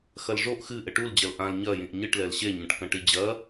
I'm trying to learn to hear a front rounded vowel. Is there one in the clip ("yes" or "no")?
no